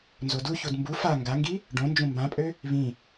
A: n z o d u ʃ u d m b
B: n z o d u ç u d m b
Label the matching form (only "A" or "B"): B